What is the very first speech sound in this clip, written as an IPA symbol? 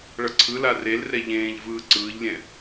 ɭ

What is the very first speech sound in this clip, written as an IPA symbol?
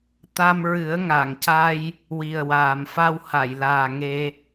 t̪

